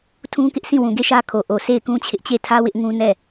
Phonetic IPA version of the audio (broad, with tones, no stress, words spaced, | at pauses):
tʰũ˦kɪ˦ʔsĩ˦˨ wũ˨ɡe˦˨ ʃä˦kʰo˨ʔo˨ se˦˨ɪ̯kũ˦t͡ɕʰɪ˦ʔ t͡ɕe˦˨tʰä˦wɪ˦ʔ ŋũ˦nɛ˦˨